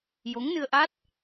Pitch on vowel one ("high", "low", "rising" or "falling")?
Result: rising